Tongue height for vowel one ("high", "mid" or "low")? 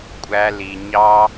low